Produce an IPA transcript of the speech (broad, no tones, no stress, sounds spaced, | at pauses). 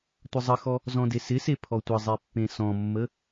tʷ ə zˤ ə x ɔ | z ɔ̃ d e s ɪ s e pʰ ɔ tʷ ə zˤ e pː ẽ s ɔ̃ mː ə